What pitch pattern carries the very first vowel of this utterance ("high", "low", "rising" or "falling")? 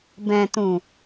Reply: low